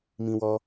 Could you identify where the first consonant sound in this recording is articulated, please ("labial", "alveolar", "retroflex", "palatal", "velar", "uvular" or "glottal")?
labial